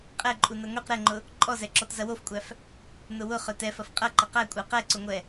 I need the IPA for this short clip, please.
qʼ ɛ ǃʼ u n ɐ ŋʷ i q ɾ ɛ ŋ͡ǃ ʊ | ǃʼ ɔ z ɛ ǁ ɔ t z ɐ w o f kʷʼ æ f | n ʊ w ʊ χ œ t ɛ f ɐ f qʼ ɐ ǃ ɐ q æ kʷʼ æ q ɛ ǀ ʊ ŋʷ ɛ

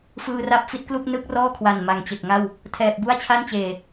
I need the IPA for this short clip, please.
f ɯː˧ r a˦˥ p̚ f i˦˥ t̚ k l u˥˩ k̚ n ɯ˥˩ k̚ r ɔː˥˩ kʰ w a˨˩ n m a˨˩ ŋ t͡ɕ e˨˩ k̚ ŋ a˥˩ w | tʰ ɛː˨˩ p̚ b u˥˩ a̯ t͡ɕʰ a˥˩ n t͡ɕ eː˨˩

